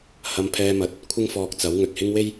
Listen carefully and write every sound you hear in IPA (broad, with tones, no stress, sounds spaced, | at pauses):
h ɐ˧ m pʰ ɛː˧ m ɐ˨ t̚ | kʷʰ ɪ˥ ŋ f ɔː˧ k̚ t͡s ɐ˨˥ w ŋ ɵ˨ t̚ h ɪ˥ ŋ w e˥ j